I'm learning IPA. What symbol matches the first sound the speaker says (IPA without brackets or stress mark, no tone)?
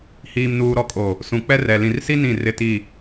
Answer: h